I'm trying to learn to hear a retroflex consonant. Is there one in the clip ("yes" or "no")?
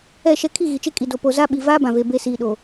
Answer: no